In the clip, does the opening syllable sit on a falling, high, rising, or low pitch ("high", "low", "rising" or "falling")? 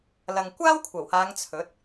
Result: low